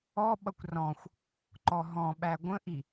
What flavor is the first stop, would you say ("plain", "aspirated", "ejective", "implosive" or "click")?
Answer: implosive